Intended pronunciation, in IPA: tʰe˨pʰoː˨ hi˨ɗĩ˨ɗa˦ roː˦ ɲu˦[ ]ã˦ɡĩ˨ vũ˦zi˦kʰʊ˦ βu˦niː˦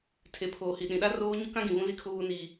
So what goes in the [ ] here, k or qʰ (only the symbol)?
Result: k